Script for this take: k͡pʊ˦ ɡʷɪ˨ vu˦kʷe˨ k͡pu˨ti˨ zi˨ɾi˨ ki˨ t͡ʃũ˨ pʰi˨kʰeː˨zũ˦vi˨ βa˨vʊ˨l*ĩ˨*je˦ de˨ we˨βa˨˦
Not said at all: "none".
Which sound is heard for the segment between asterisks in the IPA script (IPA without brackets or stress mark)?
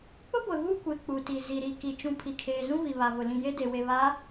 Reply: ĩ˨